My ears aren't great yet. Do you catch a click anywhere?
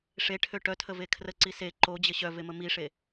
yes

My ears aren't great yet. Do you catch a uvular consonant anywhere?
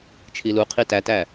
yes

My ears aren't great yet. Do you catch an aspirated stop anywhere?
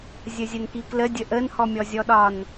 no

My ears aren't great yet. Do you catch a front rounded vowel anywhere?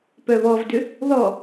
yes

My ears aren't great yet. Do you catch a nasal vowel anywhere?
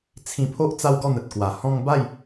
yes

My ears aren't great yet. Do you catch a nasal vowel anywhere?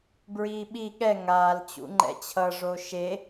no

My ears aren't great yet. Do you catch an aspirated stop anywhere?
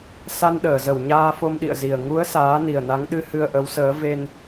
no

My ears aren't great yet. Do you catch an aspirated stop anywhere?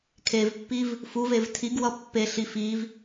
yes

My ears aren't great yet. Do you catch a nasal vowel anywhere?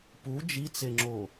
no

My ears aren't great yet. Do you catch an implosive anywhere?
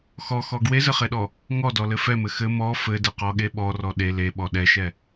yes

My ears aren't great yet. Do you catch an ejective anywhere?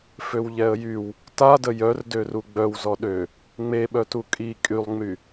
yes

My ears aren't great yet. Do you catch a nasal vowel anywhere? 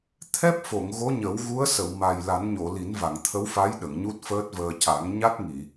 no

